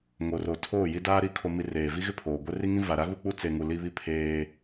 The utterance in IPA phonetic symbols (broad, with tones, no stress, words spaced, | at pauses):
ŋo˨ro˨ tʰoː˦˨ji˦daː˦ɾi˨˦ kʰo˨mi˨ reː˨vi˦ɣɪ˦pʰoː˨ ɡʷɛ˦ri˦ŋĩ˦ va˨ɾa˦ ɣu˦ k͡pu˦ t͡se˨ŋu˨ li˦βi˦ pʰeː˦